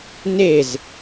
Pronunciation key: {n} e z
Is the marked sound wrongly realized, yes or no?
no